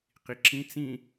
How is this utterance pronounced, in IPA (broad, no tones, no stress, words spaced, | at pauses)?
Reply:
qiǁĩ t͡sĩ